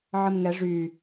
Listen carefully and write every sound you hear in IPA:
ʕ ə m ŋ ɛ ʐ y

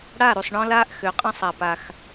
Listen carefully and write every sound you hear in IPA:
ɽ a˦˨ ɾ u˨ sˤ ɳ ɔ̃˦ l aː˧ ʔ x ø˨ qʼ ə̃˦ sˤ a˨ p a˨ x

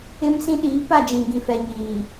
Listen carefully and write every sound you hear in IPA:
ɪ˦ m s ĩ˦ ɗ iː˨˦ p a˦˨ d͡ʒ ĩ˨ ɡ ĩ˨ f ɛ˨ ɲ iː˨

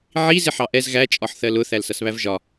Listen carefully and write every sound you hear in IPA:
ʕ i z ɪ ħ ɑ ʔ ɛ z ɣ æ t͡ʃʼ ɒ ħ θ ɜ l ʊ θ æ l s ʌ s β æ v ʒ ɒ

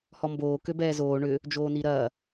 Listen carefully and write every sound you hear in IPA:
h ɔ m b oː k ø b ɛː z oː ɳ ʏ | d͡ʒ oː n i ɾ ɐː

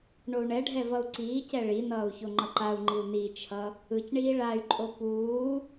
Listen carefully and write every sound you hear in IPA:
ɳ o u̯ ɳ ɛ ɖʱ ɛ v ʌ u̯ ǀ iː c ɛ ɭ i n ʌː u̯ ç o ŋ͡ǃ ʌ ǃ a u̯ ŋ͡ǃ i u̯ n i t͡ʃʰ ʌ | ɯ c ɳ iː ɭ a y̯ ǃʼ o p uː

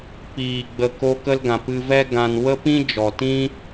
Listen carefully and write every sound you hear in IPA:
p iː˨ ɡ͡b ə˨ k o˧ k ə˧ l ɡ ã˨ p ɨ˧ v ɛ˦ ɡ ã˧ n w ə˦ p ĩ˦ d͡ʒ ɔ˨ t ĩ˦

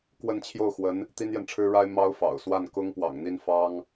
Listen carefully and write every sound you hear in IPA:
k w ə˥˧ n t͡ɕʰ j o˥˩ ʊ̯ x w ə˧˥ n | t̪ i˥ n j ɛ˨ n ʈ͡ʂʰ ɻ̩˥ ɻ a˥ ɪ̯ m ɑ˥ ʊ̯ f ɑ̰˨˩ ʊ̯ s w a˥˩ n k ʊ˥ ŋ p w ɑ̰˨˩ ŋ n̪ i˥˩ n f ɑ˥ ŋ

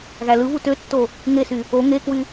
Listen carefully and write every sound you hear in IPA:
ɣ æ l ɯ β u t ø tː o | ŋ e s y | o ŋ e k w y

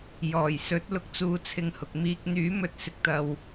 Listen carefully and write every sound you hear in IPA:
j ɔː˨˩ j s ɵ˨˥ t̚ l ʊ˧ k̚ t͡s uː˧ t͡sʰ ɪ˧ ŋ h ʊ˨ k̚ m iː˧ k̚ n̪ yː˨˥ m ɵ˧ t̚ s ɪ˨˥ k̚ t̪ ɐ˨ w

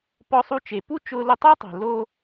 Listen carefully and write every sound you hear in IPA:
p ɔ˧ sˤ u˧ t͡ʃ e˩ p u˥ t͡ʃ ʊː˧ l ʊ˧ tˤ ɪː˥ tˤ e̤˩ l o˧

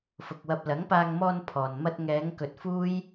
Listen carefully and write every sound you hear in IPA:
f ʊ˨ k̚ w ɐ˧ p̚ l ɐ˨˥ ŋ p aː˧ ŋ m ɔː˧ n pʰ ɔː˨ n m ɐ˧ t̚ ŋ ɛː˨˧ ŋ k ɵ˨ t̚ f uː˥ j

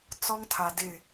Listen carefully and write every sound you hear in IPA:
t͡s ɔ˦ ŋ tʰ a˨ d ɪ˦˨

